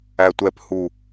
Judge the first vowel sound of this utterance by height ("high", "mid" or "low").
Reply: low